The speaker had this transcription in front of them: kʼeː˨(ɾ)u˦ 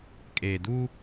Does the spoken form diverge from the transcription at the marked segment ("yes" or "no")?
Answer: yes